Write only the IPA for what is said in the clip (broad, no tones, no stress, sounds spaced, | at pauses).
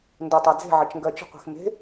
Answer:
n d o tˤ a d͡z e̤ ʕ ɐ t͡ʃ ŋ ɡ ɜ t͡ʃ ə̤ qʷ e̤ x m e̤